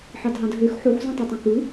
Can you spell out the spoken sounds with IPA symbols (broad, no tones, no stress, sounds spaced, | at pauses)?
ħ ɑ d ɦ ɑ̃ d ɦ ø x ħ o x z ũ tˤ i tˤ ẽ k ɯ